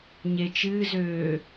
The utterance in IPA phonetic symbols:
ɲ e t͡ʃ ɨː z øː

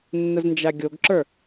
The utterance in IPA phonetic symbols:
nː ə z n d͡ʒ a ɡʲ o ɡ ǁ ə˞

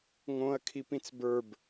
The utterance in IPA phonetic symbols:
ŋ õ ɐ̯ kʰ i p ĩ t͡s b ə˞ b

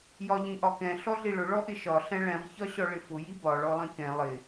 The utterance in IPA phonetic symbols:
j ɒ ʎ ĩ ʔ ɒ k ɛ̃ ɬ ɔ ɮ i ɭ ʊ ɭ ɔ ʔ ɪ ʃ ɒ ɬ ɛ̃ ɭ ɛ̃ ʁ ç ɒ ɕ ɔ ɭ ɪ f ʊ j i b ɒ ɭ ɔ lˠ ĩ k ɛ̃ lˠ ɪ

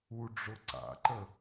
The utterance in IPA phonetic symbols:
u ɖ͡ʐ ʊ ǀ a̰ ǃ ə

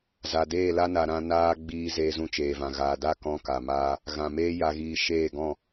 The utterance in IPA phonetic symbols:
z a˨ d eː˦˨ l a˦ n a˧ ɾ ã˦ n aː˦ ɡ͡b iː˧ z eː˧ z ũ˧ t͡ʃ eː˨ v ã˨ ɣ aː˨ d a˦˨ k ɔ̃˦ k a˨ m aː˦ | ɣ ã˨ m eː˦ j a˧ ɣ iː˧ ʃ eː˦˨ ɡ ɔ̃˦˨

